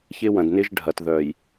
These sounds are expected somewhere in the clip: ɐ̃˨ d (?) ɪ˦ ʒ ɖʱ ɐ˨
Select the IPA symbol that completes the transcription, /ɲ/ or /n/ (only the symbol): n